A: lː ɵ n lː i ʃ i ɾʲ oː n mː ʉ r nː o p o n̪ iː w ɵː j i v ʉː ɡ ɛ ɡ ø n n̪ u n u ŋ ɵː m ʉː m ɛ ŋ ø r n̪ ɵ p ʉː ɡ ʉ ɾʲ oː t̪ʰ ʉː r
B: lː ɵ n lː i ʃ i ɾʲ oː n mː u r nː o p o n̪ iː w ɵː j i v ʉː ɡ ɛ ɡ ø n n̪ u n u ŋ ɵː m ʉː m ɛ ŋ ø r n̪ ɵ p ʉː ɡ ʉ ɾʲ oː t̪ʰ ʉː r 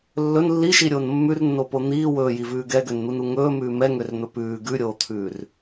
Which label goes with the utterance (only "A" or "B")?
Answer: A